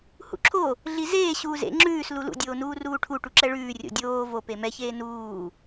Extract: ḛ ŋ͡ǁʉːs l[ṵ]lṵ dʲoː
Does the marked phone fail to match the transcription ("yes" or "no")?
yes